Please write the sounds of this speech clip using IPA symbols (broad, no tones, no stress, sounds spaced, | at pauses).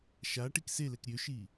ʃ a ʈ i k s e l ɛ k ɾʲ ø ʃ iː